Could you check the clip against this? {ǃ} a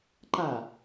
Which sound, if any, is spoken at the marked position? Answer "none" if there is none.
ǃ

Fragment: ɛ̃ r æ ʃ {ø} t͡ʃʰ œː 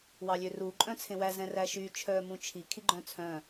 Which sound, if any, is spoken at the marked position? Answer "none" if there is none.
y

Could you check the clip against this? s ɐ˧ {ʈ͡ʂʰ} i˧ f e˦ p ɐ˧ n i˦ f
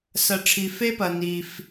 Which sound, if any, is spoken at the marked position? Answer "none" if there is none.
ʈ͡ʂʰ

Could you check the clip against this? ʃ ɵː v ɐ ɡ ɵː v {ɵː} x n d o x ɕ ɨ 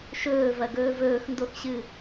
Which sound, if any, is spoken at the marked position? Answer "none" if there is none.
ɵː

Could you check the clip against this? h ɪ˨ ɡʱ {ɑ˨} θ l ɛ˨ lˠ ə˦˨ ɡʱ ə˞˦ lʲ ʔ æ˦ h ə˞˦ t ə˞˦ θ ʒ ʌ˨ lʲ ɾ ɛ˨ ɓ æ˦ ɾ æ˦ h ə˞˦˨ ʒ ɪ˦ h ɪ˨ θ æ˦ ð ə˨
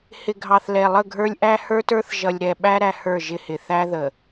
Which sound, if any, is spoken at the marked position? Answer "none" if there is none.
ɑ˨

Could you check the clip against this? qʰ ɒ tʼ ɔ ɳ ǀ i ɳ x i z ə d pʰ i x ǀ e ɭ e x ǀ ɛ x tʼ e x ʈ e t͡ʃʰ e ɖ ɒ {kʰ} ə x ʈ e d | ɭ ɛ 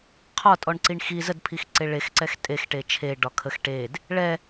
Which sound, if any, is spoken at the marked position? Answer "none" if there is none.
kʰ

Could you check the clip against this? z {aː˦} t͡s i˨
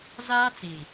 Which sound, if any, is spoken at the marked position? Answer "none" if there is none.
aː˦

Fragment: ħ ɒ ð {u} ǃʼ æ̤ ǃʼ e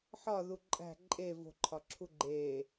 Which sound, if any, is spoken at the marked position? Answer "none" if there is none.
u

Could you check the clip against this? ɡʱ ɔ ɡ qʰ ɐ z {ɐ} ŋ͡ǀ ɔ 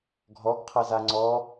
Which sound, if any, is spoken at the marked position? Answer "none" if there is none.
a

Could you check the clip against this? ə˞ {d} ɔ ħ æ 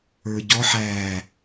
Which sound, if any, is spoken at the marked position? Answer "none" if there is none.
ɟ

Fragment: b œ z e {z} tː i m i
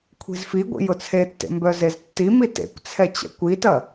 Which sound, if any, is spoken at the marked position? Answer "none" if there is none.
z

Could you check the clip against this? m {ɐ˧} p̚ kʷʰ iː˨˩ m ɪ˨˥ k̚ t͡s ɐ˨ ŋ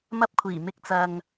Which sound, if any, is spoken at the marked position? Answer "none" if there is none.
ɐ˧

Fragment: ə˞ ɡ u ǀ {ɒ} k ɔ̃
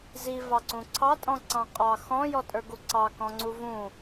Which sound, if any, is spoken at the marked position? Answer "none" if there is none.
ɑ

